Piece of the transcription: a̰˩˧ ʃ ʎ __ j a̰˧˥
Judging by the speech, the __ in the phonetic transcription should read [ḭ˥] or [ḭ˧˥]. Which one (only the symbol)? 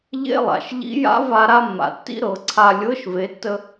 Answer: ḭ˧˥